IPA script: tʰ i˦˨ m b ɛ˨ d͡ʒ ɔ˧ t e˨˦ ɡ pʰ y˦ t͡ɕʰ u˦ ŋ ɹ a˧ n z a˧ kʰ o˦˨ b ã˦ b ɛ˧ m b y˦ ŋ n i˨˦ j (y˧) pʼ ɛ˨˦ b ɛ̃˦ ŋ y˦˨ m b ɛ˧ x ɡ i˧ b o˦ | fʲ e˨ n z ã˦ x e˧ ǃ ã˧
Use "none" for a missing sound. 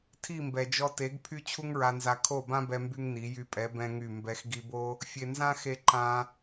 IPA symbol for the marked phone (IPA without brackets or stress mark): y˧